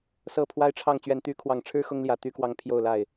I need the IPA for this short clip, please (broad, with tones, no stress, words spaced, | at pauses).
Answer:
sɤ˨˩ pʰwa˥ɪ̯ʈ͡ʂʰɑ˥˩ŋ t͡ɕɥɛ˨˩nt̪y˧˥kʰwɑ˨˩ŋʈ͡ʂʰɻ̩˥ xʊ˥ŋljä˨˩ t̪y˥kwɑ˥˧ŋpʰjo˥˧ʊ̯ la˥˩ɪ̯